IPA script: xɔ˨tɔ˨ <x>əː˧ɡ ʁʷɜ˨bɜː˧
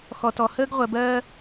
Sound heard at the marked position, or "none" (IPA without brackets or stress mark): h